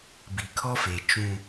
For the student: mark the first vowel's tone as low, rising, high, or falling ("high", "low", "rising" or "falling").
low